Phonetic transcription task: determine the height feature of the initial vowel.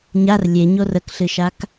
low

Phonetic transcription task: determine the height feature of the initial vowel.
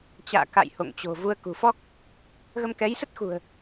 low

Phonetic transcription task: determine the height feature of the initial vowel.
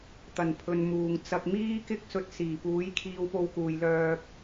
low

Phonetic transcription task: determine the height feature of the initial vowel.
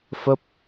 mid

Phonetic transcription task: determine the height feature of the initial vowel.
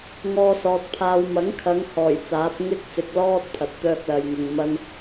mid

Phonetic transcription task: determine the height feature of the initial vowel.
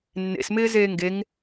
mid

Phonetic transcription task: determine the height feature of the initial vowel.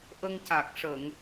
mid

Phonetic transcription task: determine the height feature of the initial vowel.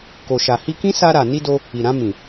mid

